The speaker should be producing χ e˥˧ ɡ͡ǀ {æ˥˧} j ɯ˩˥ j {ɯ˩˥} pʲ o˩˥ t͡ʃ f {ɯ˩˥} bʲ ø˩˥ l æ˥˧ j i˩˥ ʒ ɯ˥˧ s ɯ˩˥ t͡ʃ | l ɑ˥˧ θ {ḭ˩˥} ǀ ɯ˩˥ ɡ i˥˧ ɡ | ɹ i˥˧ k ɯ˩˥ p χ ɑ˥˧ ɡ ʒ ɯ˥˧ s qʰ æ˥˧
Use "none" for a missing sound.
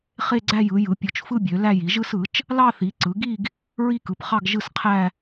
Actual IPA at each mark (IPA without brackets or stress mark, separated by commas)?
æ˥˧, ɯ˩˥, ɯ˥˧, i˩˥